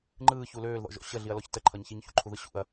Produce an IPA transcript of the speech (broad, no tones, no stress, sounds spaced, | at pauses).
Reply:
ŋ͡ǃ ɯː ç u l øː l ð ɔ̰ ʒ ɔ̰ ɕ ə ɮ i ɐ̯ l ɔ ç t ə ǃʰ ʌ ɲ ç i ɲ ç ṵ ǃʰ u ð ɯ ɕ ṵ ɐ̯